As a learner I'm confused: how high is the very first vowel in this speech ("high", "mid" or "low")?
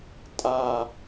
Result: low